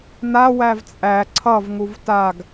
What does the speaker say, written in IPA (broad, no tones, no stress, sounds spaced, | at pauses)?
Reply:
n a w æ v t͡sʼ æ ǀʰ ʌ v ŋ u v t a ɡ